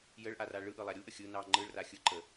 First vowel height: mid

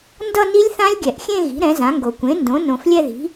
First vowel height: mid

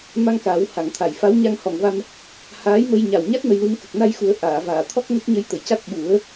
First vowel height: low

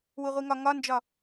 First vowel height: high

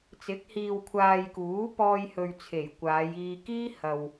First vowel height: high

